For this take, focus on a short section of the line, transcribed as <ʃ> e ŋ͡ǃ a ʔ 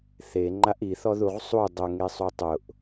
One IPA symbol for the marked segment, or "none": θ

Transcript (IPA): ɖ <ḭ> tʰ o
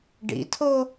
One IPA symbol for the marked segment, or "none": ḭ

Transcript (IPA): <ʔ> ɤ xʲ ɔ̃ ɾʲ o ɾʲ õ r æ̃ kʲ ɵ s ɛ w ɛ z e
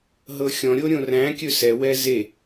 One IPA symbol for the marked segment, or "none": ɦ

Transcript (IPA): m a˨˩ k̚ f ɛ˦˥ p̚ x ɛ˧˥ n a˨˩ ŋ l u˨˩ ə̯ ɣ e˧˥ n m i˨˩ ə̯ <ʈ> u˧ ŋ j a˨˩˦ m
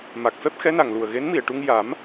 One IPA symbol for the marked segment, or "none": ʈ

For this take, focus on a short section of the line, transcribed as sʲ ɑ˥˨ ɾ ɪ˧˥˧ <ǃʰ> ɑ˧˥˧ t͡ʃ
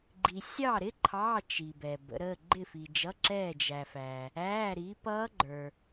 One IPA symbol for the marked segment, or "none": ǃʰ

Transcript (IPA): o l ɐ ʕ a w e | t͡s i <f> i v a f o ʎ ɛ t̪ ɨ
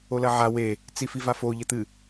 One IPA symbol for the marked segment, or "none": f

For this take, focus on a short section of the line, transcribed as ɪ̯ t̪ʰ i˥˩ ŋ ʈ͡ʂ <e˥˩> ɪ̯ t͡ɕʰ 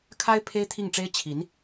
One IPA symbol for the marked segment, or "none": e˥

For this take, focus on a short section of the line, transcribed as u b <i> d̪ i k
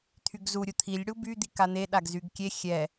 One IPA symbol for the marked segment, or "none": y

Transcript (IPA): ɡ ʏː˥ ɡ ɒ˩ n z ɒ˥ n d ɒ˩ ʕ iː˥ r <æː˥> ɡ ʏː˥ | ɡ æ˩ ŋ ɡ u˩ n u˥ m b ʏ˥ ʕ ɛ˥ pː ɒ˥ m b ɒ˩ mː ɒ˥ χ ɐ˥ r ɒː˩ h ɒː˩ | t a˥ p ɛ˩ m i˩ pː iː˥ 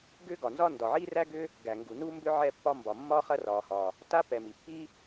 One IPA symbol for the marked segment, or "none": æ˥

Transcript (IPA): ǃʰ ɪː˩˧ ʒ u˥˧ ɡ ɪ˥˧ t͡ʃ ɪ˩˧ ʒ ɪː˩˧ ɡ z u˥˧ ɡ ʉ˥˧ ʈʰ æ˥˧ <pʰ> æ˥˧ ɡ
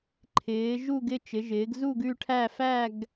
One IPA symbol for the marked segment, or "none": f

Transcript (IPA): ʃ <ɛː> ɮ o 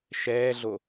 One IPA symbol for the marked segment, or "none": ɛː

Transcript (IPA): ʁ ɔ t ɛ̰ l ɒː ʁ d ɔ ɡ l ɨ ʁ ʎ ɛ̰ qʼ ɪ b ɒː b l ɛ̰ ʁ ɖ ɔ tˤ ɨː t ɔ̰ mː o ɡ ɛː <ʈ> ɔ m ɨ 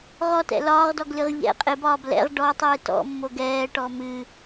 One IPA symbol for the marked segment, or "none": ʈ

